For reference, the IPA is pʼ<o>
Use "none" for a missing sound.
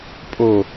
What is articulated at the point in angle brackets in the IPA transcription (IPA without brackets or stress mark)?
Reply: o